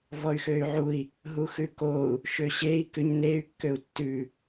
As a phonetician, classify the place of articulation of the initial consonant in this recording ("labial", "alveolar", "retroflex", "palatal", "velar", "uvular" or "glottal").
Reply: labial